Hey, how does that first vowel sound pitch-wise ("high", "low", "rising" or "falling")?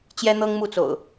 high